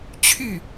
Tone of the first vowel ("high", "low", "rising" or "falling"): falling